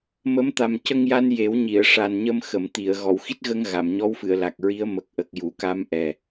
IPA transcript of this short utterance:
m ə˧˥ m t̪ a˨˩ m c ə˧ ŋ j a˧ n j e˨˩˦ w ɲ i˨˩˨ ə̯ ʂ a˨˩ n ɲ ə˧ m x ə˨˩˨ m t̪ i˨˩˨ ə̯ ɣ ɔ˨˩˨ w x i˦˥ t̚ ɣ ə˧ ŋ ɣ a˨˩˨ m ɲ ɔ˧˥ w f ɨ˨˩˨ ə̯ l a˨˩ k̚ ɹ i˧˥ ə̯ m ə˨˩ k̚ ʔ ə˨˩ k̚ j u˨˩˨ k a˧ m ʔ ɛ˨˩

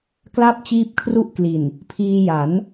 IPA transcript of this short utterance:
k l a˥˩ p̚ t͡ɕ iː˦˥ p̚ kʰ r u˥˩ ʔ k l i˨˩ n | pʰ iː˧ j a˩˦ n

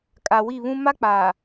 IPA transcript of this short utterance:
kʼ a˨ w i˦˨ β ũ˦ m a˦ k͡p aː˨

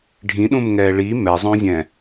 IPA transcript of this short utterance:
ɖʱ ĩ ɗ ũ m ŋ ɛː ɭ i m ɛ zˤ õ zʲ ɛ̃

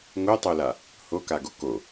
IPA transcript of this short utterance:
ŋ o tˤ o l a | h o k a ɡ o k o

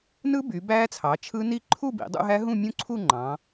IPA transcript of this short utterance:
n ɯ˦˥ b y˩˧ b æː˦˥ t͡sʰ ɑ˩˧ t͡ʃʰ ɯ˦˥ n i˥˧ ǃʰ u˥˧ b ḭ˩˧ dˤ ṵ˥˧ ɦ æ˦˥ ɦ ũ˥˧ mʲ ũ˦˥ ǀʰ u˥˧ ŋ͡ǃ ɑ̃˩˧

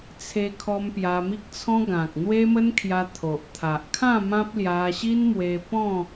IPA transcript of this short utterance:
t͡sʰ e˧ kʰ ɔ˧ m p j a˧ m i˦ k̚ t͡sʰ ɔ̃˦ ɡ ã˨ k̚ n̪ w e˦ m ə˦ n kʰ j a˧ t̪ʰ o˨ ʔ t̪ʰ a˨ ʔ kʰ ã˥˧ m ã˦ p̚ l j a˧ ɕ i˦ n m w e˧ p ɔ̃˥˧

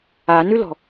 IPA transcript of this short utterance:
a n ʉ l ɔ̤

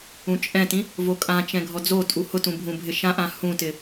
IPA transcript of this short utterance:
ũ t͡ʃʼ ɛ̃ t ĩ | v o kʼ ã t͡ʃ ɛ̃ ɡʱ ɔ d͡z o tʼ u h ʊ t ũ bʱ ũ bʱ ɪ ʃ ã ʔ ã h ũ t ɪ

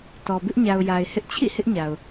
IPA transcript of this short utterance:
t ɔ˨ b ɪ˦ ʔ ɲ a˨ ʊ̯ j a˨ ɪ̯ h ɪ˦ ʔ t͡ɕʰ ḭ˦˨ h ɪ˦ ʔ ɲ a˨ ʊ̯

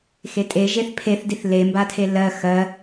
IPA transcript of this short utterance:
x e tʼ e ʒ e θ pʰ e θ d i θ l e m b a tʰ e l ɜ x ɜ

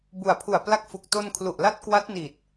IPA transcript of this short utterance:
b u˨˩ a̯ pʰ u˨˩ a̯ p l a˦˥ k̚ f u˨˩ k̚ t o˧ n kʰ l u˨˩ ʔ l a˦˥ t̚ k w a˦˥ t̚ n i˨˩ t̚

